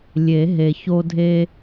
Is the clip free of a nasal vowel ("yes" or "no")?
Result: yes